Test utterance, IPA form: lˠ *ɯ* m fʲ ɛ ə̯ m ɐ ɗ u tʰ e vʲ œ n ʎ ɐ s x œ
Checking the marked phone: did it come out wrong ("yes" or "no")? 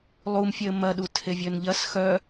yes